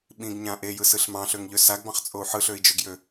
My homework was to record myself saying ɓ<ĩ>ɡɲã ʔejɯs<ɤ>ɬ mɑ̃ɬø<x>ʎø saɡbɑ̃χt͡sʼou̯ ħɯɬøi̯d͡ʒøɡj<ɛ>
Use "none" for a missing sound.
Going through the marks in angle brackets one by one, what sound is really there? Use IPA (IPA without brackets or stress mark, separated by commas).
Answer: ĩ, ɯ, ŋ, ø